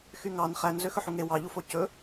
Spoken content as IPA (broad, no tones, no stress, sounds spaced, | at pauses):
x y ŋ ɑ n χ æ n z ø x ɵ ħ u ŋ e w ɑ ʎ u f o c ɵ